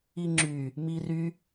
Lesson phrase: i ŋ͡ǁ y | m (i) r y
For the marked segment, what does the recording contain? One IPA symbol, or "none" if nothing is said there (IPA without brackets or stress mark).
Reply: i